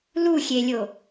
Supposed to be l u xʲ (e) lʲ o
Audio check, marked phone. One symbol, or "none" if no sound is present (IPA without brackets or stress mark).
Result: e